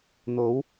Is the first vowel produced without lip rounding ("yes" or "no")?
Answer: no